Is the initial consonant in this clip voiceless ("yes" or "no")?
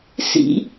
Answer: yes